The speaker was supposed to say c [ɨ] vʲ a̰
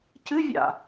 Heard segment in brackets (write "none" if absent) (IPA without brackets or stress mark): ɨ